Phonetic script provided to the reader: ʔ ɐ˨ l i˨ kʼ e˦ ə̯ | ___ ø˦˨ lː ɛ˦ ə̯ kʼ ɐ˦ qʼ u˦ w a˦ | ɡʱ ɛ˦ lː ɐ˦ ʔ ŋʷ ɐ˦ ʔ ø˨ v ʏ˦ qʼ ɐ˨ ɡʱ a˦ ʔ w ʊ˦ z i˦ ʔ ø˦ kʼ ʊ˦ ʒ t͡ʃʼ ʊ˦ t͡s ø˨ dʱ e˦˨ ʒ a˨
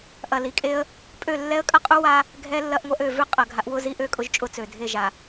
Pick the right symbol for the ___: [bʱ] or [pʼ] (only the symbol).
pʼ